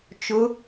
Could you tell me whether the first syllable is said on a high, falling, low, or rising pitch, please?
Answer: rising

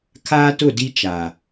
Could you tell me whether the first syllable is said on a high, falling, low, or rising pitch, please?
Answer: high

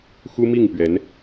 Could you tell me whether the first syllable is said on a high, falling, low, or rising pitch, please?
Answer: high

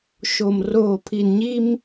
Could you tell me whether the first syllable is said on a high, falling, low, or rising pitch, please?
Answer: low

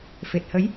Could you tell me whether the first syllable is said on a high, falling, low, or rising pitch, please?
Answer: low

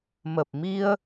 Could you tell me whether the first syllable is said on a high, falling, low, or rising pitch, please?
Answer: low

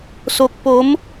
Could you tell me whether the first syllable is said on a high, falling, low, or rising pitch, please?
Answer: low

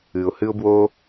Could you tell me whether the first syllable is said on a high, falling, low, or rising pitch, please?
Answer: low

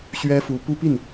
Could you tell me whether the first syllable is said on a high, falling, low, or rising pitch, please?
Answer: high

